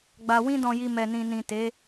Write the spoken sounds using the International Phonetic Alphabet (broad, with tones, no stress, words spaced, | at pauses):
ɡ͡ba˨ wĩ˧dɔ̃˨ji˨ mɛ˨nĩ˨nĩ˨te˨˦